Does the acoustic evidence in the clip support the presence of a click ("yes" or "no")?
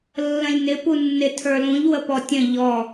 no